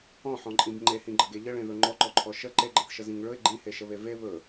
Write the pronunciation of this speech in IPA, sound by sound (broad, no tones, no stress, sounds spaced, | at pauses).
ɔ̃ ħ ɔ̃ ǃʼ ĩ b ŋ͡ǃ e h ĩ ɡ͡ǃ ə ɡ e ʎ ə ɭ ẽ ð ɵ ŋ͡ǃ ɔ ǃ ɔ ǃʰ ɔ ʃ ə ǃ e ɡ͡ǃ ə̃ θ ʃ ə z ĩ ŋ ɭ ɵ ɪ̯ ɡ͡ǃ ĩ h e ʃ ə β e v e β ɵ